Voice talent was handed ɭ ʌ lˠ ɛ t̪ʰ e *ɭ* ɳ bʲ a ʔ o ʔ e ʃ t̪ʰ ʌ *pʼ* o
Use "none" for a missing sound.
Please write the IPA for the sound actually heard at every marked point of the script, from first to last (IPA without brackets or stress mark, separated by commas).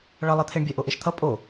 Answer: none, pʼ